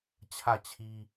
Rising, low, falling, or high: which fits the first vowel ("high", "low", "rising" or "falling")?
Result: falling